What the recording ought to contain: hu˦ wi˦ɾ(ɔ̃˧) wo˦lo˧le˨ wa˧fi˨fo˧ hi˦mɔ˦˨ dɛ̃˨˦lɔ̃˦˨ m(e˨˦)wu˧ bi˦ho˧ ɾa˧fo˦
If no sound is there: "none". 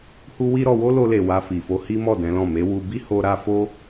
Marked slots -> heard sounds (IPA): ɔ˧, e˨˦

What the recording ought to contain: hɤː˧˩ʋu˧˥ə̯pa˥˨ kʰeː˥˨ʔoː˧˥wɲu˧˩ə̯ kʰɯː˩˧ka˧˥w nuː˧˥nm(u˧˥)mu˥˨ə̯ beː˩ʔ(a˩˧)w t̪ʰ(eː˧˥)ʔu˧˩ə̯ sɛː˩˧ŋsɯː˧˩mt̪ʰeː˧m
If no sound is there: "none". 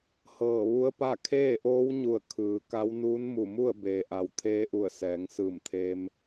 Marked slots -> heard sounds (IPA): u˧˩, a˩˧, eː˧˥

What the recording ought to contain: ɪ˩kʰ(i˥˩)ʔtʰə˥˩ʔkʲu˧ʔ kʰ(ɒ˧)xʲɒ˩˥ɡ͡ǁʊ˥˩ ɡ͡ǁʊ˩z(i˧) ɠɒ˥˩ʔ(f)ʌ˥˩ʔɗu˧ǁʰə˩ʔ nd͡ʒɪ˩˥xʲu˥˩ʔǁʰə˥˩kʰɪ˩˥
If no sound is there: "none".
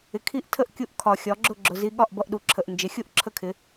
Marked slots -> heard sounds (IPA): i˥˩, ɒ˩, i˧, b

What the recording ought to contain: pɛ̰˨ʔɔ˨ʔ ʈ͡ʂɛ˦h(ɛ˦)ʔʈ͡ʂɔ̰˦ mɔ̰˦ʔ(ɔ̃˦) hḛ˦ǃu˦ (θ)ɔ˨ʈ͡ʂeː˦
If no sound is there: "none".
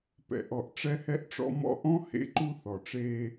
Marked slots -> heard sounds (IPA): ɛ˦, ɔ̃˦, θ

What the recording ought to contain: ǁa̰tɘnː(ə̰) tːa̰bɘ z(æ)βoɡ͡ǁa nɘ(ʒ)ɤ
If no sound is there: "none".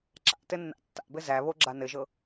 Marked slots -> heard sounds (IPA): a̰, æ, ʒ

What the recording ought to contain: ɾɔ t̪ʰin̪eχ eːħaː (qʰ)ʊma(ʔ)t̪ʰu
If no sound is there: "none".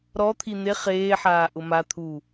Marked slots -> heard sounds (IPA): ʔ, none

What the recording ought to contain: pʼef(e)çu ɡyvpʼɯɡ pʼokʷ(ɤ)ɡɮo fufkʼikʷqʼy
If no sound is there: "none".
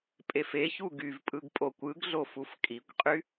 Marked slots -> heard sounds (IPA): e, ɯ

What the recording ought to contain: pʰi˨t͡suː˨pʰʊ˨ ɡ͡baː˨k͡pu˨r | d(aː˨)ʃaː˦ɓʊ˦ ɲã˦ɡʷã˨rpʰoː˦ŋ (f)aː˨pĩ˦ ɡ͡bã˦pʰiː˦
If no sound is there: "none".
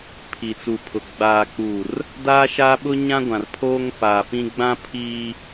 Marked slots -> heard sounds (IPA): aː˦, f

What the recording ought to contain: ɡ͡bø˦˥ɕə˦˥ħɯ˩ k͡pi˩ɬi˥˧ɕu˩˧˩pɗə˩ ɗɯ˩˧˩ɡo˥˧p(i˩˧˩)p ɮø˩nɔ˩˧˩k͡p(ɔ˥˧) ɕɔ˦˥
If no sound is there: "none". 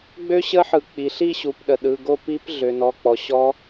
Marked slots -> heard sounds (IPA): i˦˥, ɔ˩

